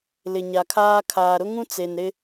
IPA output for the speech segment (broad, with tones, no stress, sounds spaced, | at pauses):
l ɪ˨ ɲ a˨ kʰ aː˦ kʰ aː˨ ɾ ʊ˦ ŋ ũ˦ t͡s e˨ n ɾ ɪ˦